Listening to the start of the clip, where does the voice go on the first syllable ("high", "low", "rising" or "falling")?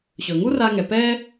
low